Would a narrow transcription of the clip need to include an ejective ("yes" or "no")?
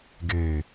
no